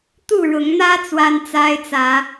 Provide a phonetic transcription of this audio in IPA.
t̪u˥˨ɻʊ˨˦ŋn̪ä˦ t͡swa˦nt͡sa˦ɪ̯t͡sä˨˦

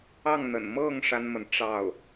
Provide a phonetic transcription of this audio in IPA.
ɑ˥˩ŋn̪ə̰˨˩n mɤ˥˩ŋ ʂa˥nmə˨nʈ͡ʂɑ˥˩ʊ̯

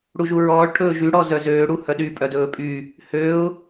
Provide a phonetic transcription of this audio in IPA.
ɽuʒuɹɔːɭ ʈʰɵːʒy ɽɔzœzøː ɽuhœɗy pʼœdɵːpʼy | høʊ̯

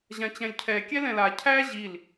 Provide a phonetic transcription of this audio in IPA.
ʑãt͡ɕæ̃lʲcʰɛ kʲɛlɛ̃la cʰæ ʑil

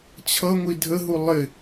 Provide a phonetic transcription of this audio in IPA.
t͡ɕʰʌŋʷi dʱəɦu lˠɪ

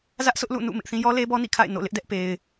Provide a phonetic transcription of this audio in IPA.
zä˦ʔsʊ˦ʔlṵ˦˨nṵ˦˨ mɪ˦ʔθĩ˦ jɔ˦ le˦bɔ˦nḭ˦˨kʰa̰˦˨ɪ̯ no̰˦˨lɪ˦ʔdɛ˦ʔ pe˦ɪ̯

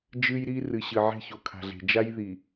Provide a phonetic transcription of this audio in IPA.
d͡ʒɨ˦jɾi˦ rɨ˨ɕɨ˨ ʕe̤˦ço˨kʰa̤˨ɮe̤˨ d͡ʒa˦jði˨

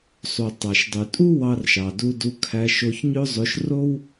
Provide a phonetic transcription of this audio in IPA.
sˤu˩ tˤɑ˩ʃdˤy˩tʼu˥ wɑ˧rʃɑ˩du˧du˧ kʰæ˧ʃo˧ç ɲø˥zˤø˧ʃ ro˥w

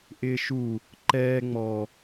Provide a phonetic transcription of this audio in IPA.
ʔɪːʃu | ǃɛː ŋ͡mɔ

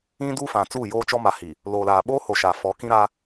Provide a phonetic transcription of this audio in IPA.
ĩ˦du˦fã˨ t͡suː˦˨joː˦t͡ʃɔ˦ ma˨hi˨ | loː˨laː˨ɓoː˦ho˨ ʃa˨ fɔ˨˦kĩ˦ɾa˦

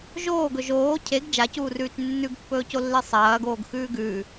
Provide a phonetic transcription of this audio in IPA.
ʒoːɡɵ ʒoː cʰeɡ d͡ʒacuːrʉːt͡ʃ nːʉɡpːɵːcolːe sˤɐːɡoːɡxʉː ɡʉː

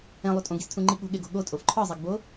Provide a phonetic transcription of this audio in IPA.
ẽlˠu tʼõɡistʰũŋ͡ǃi ɠo̤ɠeɡo̤ ɠotʼof ǃʰɒzˤiɡbo

